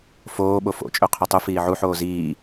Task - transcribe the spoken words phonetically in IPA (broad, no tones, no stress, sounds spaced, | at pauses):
f oː ɓ o f o̰ t͡ʃʼ ø qʰ ø tˤ u f iː ʕ u ħ oː z iː